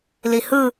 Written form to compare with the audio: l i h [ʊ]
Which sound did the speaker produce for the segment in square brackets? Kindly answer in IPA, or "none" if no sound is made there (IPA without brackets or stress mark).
ɯ